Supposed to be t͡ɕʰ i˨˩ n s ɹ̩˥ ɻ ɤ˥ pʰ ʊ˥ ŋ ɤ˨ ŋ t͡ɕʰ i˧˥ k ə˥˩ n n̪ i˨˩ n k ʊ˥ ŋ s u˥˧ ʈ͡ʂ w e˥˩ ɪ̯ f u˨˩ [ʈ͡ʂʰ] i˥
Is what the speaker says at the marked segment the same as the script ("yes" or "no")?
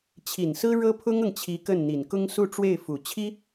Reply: no